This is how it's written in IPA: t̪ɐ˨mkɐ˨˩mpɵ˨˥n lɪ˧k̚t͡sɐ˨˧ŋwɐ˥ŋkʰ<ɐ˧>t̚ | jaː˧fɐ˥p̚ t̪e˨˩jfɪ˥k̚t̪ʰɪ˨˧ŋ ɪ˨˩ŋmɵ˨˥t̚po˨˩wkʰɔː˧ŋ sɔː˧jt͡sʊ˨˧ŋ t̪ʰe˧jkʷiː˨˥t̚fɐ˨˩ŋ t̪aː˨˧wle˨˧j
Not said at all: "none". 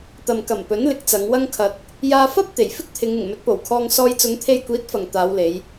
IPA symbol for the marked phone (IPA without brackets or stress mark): ɐ˧